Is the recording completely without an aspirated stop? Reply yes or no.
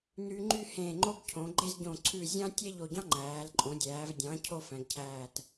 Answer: no